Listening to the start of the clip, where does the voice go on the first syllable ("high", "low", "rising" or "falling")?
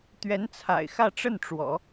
rising